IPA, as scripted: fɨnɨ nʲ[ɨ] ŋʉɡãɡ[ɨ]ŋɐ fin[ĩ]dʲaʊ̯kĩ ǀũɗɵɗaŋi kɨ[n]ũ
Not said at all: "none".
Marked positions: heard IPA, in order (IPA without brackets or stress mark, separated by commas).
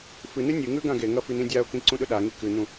ɨ, e, ĩ, n